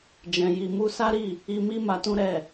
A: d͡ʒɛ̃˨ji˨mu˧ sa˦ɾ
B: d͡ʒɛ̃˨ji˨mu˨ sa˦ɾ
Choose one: A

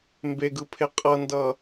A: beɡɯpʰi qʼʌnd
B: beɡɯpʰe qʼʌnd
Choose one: B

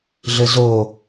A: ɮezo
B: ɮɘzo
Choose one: B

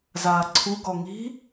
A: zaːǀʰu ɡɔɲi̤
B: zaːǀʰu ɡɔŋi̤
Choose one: B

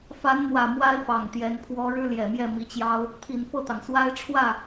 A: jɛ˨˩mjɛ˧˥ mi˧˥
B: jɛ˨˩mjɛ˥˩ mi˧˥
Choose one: B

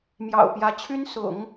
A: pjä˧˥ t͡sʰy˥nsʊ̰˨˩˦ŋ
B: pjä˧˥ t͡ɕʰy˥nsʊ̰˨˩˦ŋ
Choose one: B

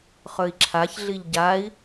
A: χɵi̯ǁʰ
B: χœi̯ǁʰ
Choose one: A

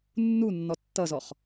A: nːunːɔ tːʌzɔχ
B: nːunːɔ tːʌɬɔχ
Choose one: A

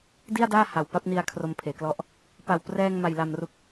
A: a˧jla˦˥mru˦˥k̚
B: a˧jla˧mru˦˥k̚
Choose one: B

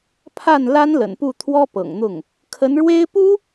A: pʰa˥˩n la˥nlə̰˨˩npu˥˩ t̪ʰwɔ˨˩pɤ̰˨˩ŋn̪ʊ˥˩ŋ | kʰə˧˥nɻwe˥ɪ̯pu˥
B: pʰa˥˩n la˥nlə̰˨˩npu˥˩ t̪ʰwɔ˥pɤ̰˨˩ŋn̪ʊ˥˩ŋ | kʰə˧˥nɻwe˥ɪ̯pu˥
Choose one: B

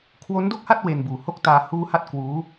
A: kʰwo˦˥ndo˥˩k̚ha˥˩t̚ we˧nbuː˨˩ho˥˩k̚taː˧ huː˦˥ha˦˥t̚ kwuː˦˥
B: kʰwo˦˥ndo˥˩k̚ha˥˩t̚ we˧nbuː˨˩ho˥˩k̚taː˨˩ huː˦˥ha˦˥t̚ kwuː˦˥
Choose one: A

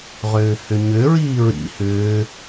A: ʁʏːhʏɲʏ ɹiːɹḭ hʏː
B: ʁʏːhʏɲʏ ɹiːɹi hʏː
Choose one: A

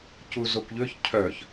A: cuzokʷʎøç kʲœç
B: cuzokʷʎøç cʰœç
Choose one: B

